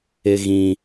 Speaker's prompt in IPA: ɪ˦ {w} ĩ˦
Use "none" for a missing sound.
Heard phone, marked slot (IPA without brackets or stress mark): ɣ